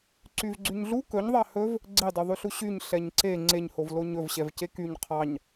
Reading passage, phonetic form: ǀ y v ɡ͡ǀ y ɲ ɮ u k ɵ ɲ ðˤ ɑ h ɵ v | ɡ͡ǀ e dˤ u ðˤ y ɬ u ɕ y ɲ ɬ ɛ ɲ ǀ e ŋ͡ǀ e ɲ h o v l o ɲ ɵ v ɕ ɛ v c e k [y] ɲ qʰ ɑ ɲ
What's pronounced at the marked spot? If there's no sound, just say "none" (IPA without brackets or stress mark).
y